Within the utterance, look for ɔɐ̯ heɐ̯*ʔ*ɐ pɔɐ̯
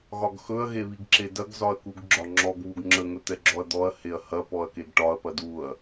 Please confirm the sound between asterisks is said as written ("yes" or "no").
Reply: no